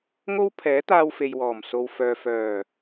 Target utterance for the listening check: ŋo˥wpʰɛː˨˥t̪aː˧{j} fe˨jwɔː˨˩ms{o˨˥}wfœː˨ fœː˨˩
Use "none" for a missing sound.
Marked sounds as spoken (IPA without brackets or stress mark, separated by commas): w, o˨